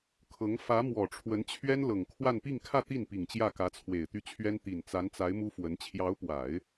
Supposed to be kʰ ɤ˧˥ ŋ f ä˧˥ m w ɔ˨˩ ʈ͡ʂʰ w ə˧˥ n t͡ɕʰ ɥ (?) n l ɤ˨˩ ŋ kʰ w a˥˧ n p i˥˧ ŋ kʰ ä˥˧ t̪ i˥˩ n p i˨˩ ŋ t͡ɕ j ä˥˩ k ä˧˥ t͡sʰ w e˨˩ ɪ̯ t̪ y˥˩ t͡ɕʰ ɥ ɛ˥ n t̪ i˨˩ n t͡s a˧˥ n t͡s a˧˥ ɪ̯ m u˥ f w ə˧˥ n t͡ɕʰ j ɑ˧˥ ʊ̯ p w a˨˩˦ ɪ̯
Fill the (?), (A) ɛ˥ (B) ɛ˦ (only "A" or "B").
A